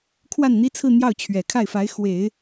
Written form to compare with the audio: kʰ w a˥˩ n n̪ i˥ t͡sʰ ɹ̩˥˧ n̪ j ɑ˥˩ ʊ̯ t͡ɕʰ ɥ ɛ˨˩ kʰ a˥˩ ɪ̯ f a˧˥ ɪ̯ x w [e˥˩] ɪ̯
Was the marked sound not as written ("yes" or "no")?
yes